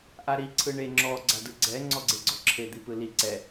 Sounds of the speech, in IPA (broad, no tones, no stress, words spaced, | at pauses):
ʔaɾi ǀʰɯɳe ŋ͡ǁɔ ɡ͡ǀadɯɡ͡ǀɛ ŋ͡ǀɔɡ͡ǀeɡ͡ǀɔǁʰe d̪ipɯli ǀɛ